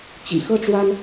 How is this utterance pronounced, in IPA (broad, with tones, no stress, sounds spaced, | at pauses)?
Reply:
t͡ɕ ḭ˨˩ x ɤ˥ ʈ͡ʂ w a˥ n